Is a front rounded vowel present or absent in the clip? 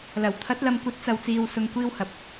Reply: absent